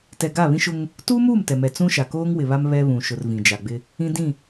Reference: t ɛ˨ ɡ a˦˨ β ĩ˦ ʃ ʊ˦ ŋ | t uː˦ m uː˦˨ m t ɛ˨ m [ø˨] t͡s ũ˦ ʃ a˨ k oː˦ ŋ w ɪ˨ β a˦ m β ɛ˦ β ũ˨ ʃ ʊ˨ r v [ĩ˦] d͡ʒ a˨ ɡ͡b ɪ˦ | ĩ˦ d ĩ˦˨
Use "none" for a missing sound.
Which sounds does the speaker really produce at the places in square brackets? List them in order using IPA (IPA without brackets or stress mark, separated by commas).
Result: ɛ˨, ĩ˨